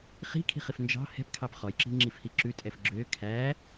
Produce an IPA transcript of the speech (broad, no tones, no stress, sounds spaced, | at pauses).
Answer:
χ i̤ kʰ i̤ χ i f n d͡ʒ ɑ̤ h ɛ̤ p kʰ ɑ p χ ɔ j ǁ i̤ ŋ͡ǁ i f h i ǁ ʉ tʼ ɛ f ɡ͡ǁ ø kʰ æ